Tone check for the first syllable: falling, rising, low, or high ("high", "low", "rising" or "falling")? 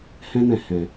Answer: high